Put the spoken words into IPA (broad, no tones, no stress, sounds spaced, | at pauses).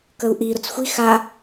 k ə u̯ ʔ i ɾ ʊ t͡s xʷ i x a